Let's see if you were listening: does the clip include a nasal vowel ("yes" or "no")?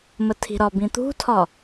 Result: yes